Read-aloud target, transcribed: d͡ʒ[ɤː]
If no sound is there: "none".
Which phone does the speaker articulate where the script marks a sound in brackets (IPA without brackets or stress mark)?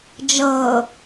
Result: ɤː